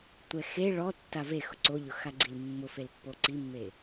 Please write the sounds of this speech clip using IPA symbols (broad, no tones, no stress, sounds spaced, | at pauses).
tʷ ɛ x e ɭ ɔ tː a v e x ʊ ǀ o ʎ ʊ x a ɡ͡ǀ i l mː ʊ f e l pː o ǀ i mː e